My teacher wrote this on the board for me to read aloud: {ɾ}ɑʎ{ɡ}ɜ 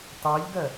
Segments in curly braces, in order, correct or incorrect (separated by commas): incorrect, correct